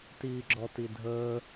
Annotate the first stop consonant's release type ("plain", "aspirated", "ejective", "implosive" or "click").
plain